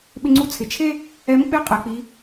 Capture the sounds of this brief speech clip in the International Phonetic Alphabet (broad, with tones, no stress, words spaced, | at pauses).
ɓɪ˧ŋ͡ǀu˧t͡sʰɪ˩t͡ʃʰe˥ | ɛ˧˥mk͡pe˥qʼɛ˩k͡pi˩˧